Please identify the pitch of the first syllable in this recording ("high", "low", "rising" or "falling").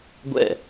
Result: falling